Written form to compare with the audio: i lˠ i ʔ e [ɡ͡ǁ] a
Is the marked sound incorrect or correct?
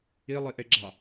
correct